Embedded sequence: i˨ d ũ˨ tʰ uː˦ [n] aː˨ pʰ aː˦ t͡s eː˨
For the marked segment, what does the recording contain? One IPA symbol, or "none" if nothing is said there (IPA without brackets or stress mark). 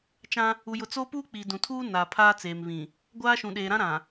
n